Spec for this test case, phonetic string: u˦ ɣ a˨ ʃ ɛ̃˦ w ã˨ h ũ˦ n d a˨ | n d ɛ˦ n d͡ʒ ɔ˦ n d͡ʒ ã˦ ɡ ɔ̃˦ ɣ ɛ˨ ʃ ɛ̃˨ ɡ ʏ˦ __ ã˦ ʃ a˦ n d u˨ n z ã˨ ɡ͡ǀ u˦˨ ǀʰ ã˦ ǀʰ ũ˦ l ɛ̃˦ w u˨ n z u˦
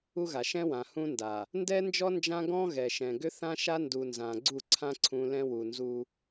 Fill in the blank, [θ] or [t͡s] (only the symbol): θ